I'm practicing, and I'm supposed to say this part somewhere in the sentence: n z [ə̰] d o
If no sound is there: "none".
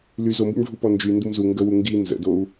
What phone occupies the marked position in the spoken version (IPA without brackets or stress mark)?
ə̰